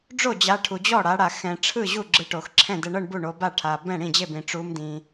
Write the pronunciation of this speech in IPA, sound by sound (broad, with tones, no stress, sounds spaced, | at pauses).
ɖ͡ʐ o˥˩ d͡ʑ a˨˦ ʈʰ u˨ d͡ʑ ɔ˥˩ ɽ a˨˦ ɽ a˨ x ɛ̃˨ ʈ͡ʂʰ ɯ˥˩ ʑ u˥˩ ɡ͡ǁ ɯ˨˦ ʈ o˨ x ǁʰ ɛ̃˥˩ d ɛ˨ ɳ ɤ˥˩ ɳ b u˥˩ ɳ o˨˦ b a˥˩ ʈʰ a˨ b ɛ̃˥˩ ɽ ĩ˥˩ d͡ʑ e˥˩ b ĩ˨ ʈ͡ʂ u˨˦ m d ĩ˨